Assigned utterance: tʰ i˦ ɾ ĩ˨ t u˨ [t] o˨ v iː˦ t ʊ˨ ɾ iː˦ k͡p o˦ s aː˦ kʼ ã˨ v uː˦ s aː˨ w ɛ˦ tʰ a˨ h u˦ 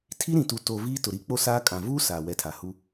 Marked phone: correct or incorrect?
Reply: correct